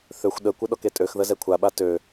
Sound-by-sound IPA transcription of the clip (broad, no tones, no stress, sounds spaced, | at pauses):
θ ø xʷ ɗ ə kʷ ə ɗ ɔ k e tʼ ø x ð ə z ɛ kʷʰ a ɓ a t ø